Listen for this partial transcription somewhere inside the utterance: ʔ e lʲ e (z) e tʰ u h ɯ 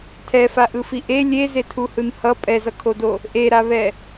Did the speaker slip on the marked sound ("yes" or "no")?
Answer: no